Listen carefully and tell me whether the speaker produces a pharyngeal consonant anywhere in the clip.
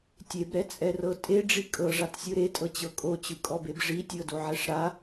yes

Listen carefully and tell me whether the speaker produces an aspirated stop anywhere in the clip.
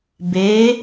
no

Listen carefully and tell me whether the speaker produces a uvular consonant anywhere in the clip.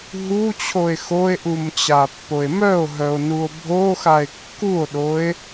no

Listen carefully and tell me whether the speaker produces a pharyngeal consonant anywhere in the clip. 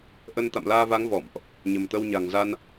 no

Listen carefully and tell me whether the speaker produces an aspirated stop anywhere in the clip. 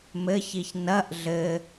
no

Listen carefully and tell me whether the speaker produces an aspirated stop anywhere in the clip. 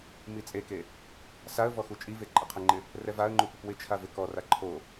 yes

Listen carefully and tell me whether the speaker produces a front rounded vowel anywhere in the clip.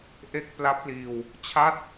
no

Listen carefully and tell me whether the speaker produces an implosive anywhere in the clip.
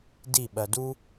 yes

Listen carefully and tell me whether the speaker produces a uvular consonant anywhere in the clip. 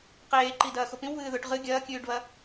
yes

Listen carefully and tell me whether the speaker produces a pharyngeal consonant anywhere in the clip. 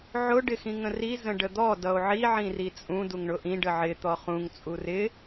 yes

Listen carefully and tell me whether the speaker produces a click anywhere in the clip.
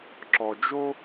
yes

